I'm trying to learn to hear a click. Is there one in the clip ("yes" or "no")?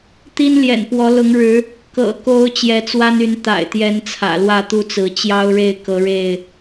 no